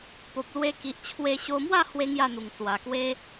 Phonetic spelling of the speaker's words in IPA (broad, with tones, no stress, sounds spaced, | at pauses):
p o˨ p̚ l w e˧ k i˨ ʔ t͡ɕʰ w e˧ ɕ o˧ m w a˥˧ h w e˦ ŋ j a˥˧ n̪ u˨˩ ŋ s w a˨˩ k w e˧